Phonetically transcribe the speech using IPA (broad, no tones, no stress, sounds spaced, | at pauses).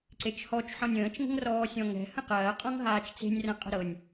ǀ e t͡ʃ h ɔ t͡ʃ ħ ɔ̃ nʲ ə̃ː t͡ʃ ŋ ə̤ ŋ r ɔː sʲ ɔ̃ ŋ ɛ̤ h ə̃ q ɐː qʼ ɔ̃ ŋ ɦ aː t͡ʃ t͡s e̤ nʲ r ɐ̃ qʼ ə̤ ɾ ɤ nʲ